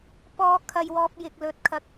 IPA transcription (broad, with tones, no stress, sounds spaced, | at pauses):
p ɔː˨˧ kʰ ɐ˨ j w ɔː˨ p̚ j ɪ˨ k̚ l ɵ˨ t̚ kʰ ɐ˨ k̚